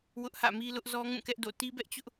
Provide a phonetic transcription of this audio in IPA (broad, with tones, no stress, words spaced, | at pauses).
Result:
wʊ˦ʔhä̰˦˨mi˦lʊ˦ʔ zɔ˦ ŋũ˦˨kɛ˦ʔ do̰˦˨ ti˦bɛ˦ʔt͡ɕʊ˦ʔ